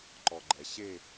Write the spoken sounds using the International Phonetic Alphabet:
ǃ ɔ ɡ͡ǃ ɛ ɕ e

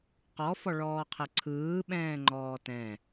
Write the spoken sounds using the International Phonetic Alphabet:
q ɔ f ɔ ɭ ɔː qʰ ə ǀʰ ɯː ɓ ɛ̃ː ŋ͡ǃ ɔː t ɛ̃

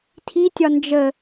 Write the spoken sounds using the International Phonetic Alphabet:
tʰ i tʲ ɒ n d͡ʒ ə

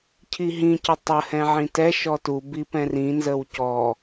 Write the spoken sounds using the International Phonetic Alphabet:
cʰ i ɦ ĩ c ə tˤ ə h ɛ̃ ʕ ĩ t ɛ ʃ ɔ t u b i p ɛ̃ r ĩ n z ə w c ɔ

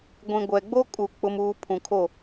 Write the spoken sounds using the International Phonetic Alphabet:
ɡʷ ĩ˨ ɡʷ ɛ˨ ɡ͡b o˦ kʼ u˨ k͡p ʊ˦ m uː˦ pʰ ũ˨ kʰ o˦˨

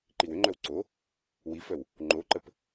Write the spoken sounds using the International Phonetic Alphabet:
ǃ i w ʏ ŋ͡ǃ œ w ǀ o | w i f œ w | ŋ͡ǃ o ǃ ə p

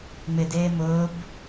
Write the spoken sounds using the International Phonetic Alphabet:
ŋ͡m ɪ d eː m ʊː b

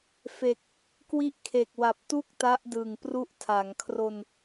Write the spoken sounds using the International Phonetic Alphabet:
f e˨˩ k̚ | k w i˦˥ ʔ kʰ e˨˩ k̚ w a˨˩ p̚ t u˥˩ k̚ t a˦˥ ʔ d ɯ˨˩ ŋ p r u˦˥ ʔ tʰ a˩˦ ŋ kʰ r o˧ n

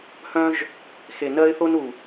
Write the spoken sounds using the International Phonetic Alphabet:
h œ̃˦ ʒ | x e˨ n ɜ˦ ɪ̯ θ o˦ n u˨

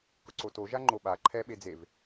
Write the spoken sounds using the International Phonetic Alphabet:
k ʊ ǀ o t o ʒ a ŋ͡ǃ o ɓ a ǃʰ ɛ ɓ e d͡z e v

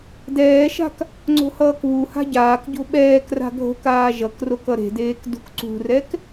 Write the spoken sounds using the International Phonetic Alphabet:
d ɛː ʃ a̤ k | ŋ͡ǀ o̤ h ʌː k β u h a̤ ɟ aː k ɟ o̤ ɓ ɛː k r a̤ ɡʱ o̤ k aː ʒ ʌ k r o k ʌ ɾ e̤ d eː k d ṳ k ǀ ṳ r ɛ k

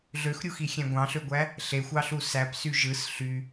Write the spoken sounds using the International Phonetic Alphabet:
ɮ ø x ɾʲ u x i xʲ æ̃ ɡʷ ɑ̃ ɬ ø ɡʷ æ | ɬ e xʷ ɑ ɬ u s æ p s y ʒ ɯ s ɬ y

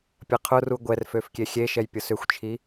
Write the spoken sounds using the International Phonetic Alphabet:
pʲ ɐ qʰ ʊ r u ɡʷ ɛ r f ø f kʲ e xʲ e ʃ ɛ j pʲ ʊ s ʏ xʷ t͡ʃʰ i

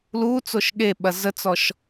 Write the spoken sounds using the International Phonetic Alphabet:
l u t͡s o ʃ ɠ e ɓ ɐ z ə t͡s ɔ ʃ

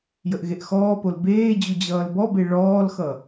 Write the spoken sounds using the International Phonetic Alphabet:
j ə ʔ ɣ e ʔ x ɔː p o l b eː d͡ʑ u d͡ʑ ʌː l b ɔ b e ɭ ɔː l x ʌ

